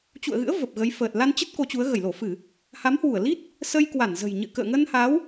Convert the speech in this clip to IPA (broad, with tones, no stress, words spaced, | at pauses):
t͡ɕṵ˧˨ə̯ɣɨ̰˧˥ə̯ və˨˩p̚ɣə˨˦jfəː˨˩t̚ la˧nt͡ɕə˦˥t̚ ko˨˦t͡ɕu˨˦ə̯ ɣə˧˩jlo˧˩fɨ˧˩˨ | ha˨˦mhwu˧˩ə̯li˦˥t̚ | sə˧jkwa˧˩nzə̤˨˩j ɲɨ̰˧˨kə̰ː˧˨ ŋə˧nha˨˦w